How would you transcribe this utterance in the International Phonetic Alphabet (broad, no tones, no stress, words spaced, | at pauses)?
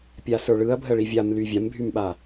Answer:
pʲasə˞ɭɯɐ̯ bʱəɭivʲamly vʲambʱymɓa